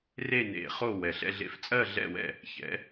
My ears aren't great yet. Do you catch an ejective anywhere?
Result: yes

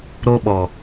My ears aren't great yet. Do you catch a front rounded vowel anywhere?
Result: no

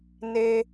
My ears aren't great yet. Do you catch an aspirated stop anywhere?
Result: no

